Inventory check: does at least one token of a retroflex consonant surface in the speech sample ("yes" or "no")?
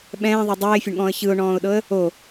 yes